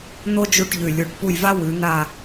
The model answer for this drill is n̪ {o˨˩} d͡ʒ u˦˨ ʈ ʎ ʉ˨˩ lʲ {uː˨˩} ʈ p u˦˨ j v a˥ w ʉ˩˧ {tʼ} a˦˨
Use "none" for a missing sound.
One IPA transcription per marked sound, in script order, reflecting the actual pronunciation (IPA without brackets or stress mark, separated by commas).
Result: o˥, u˨˩, n̪